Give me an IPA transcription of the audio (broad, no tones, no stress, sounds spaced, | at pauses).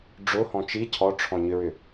ɖ͡ʐ ʊ h ɔ̃ t͡ʃ i cʰ ɔ ʈ͡ʂʰ ɔ̃ ɲ ʏ ɹ ʏ